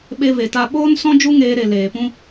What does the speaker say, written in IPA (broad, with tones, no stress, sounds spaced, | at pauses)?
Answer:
ɓ e˧ v e˨ t a˧ ɓ oː˦ n s ɔ̃˦ d͡ʒ u˦ ŋ eː˧ ɾ e˨ l eː˨ p ũ˦